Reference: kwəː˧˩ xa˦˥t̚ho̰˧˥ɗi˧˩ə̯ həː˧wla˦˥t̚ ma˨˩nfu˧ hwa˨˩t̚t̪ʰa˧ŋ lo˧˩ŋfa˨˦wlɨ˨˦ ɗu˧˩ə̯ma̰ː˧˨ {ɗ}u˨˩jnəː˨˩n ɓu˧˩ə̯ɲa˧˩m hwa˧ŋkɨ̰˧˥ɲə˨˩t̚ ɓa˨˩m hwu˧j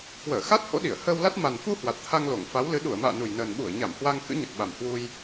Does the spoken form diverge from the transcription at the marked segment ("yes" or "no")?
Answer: yes